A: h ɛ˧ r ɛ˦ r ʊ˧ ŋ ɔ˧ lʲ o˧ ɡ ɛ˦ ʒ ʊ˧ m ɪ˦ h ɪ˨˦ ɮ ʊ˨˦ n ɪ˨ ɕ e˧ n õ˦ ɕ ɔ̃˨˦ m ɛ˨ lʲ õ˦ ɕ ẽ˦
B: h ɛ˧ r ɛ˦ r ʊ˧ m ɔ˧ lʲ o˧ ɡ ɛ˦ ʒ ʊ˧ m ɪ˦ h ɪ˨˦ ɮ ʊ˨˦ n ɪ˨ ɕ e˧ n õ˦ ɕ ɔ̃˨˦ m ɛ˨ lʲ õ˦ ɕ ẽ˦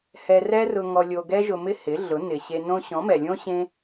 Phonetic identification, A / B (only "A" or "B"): A